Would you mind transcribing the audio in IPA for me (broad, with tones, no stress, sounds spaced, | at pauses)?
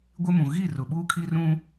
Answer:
ɡʷ ɪ˦ m ũ˨ ɣ i˦˨ r ʊ˨ ɓ uː˦ kʰ i˦ r ũ˦